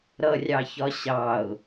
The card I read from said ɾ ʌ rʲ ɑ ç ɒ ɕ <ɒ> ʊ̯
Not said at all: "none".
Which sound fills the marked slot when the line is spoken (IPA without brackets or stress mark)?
ɑ